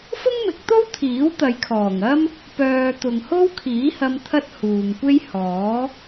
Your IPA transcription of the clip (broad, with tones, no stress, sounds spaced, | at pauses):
f ʊ˥ ŋ m ɪ˨˥ k̚ t̪ o˥ w t̪ʰ iː˨˥ w t̪ ɐ˨˧ j kʰ ɔː˨˩ ŋ ɐ˥ m | p œː˨ t̪ ʊ˨ ŋ h o˥ w kʰ iː˨˥ h ɐ˧ m t̪ʰ ɐ˥ t̚ h uː˨ ŋ kʷ e˥ j h ɔː˨˥